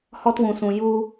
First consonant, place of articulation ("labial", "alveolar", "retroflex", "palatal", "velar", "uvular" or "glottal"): glottal